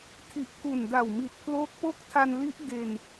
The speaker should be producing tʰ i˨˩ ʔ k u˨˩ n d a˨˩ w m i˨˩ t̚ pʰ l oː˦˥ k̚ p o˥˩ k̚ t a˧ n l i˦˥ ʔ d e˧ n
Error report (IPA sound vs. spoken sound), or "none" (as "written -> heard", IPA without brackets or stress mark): t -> tʰ